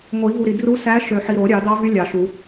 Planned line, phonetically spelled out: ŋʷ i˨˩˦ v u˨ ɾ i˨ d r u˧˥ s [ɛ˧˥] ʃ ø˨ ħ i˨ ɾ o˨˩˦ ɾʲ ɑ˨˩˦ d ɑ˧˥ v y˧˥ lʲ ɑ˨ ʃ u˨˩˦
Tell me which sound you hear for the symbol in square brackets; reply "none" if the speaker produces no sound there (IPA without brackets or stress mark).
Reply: æ˧˥